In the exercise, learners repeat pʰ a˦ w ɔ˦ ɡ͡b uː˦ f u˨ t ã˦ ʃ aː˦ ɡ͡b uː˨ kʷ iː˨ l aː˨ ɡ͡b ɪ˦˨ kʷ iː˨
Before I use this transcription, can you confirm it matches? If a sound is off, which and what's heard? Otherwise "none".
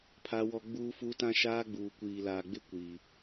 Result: u˨ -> u˦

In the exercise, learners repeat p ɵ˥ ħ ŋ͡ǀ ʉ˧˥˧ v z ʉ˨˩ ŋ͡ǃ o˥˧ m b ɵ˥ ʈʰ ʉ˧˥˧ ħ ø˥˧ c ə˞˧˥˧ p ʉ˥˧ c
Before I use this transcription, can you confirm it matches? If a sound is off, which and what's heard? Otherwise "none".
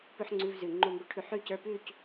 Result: ø˥˧ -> ʉ˥˧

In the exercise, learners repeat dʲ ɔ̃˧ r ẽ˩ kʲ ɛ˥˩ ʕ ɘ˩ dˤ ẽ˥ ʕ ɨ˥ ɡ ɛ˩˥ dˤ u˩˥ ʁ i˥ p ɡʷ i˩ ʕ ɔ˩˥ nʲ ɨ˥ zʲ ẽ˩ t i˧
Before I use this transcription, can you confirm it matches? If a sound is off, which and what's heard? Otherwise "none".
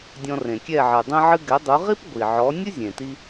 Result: none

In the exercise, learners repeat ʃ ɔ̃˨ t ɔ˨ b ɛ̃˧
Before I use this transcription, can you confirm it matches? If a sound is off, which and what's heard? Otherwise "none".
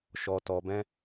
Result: ɔ̃˨ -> ɔ˨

